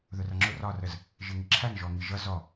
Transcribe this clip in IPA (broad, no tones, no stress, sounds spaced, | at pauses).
ð ʊ r ʌ ŋ͡ǁ ʊ r ɒ r ə z | ʒ ɪ ŋ ɪ ǁʰ æ n ʒ ɔ ŋ i ʒ ʌ z ɔ